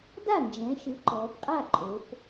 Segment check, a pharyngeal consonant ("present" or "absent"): absent